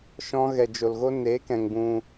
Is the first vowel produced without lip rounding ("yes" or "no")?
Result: no